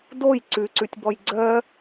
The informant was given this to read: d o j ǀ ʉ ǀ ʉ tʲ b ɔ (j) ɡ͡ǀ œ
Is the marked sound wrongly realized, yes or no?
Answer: no